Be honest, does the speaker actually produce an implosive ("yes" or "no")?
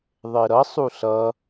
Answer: no